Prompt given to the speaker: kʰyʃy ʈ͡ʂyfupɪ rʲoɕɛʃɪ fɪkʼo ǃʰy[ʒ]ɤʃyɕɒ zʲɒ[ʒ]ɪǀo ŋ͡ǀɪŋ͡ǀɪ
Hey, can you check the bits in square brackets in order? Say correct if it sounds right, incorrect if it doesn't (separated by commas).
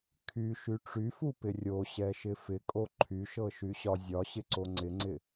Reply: incorrect, incorrect